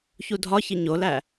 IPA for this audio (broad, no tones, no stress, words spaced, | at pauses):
çudʱɒçi ɲolæ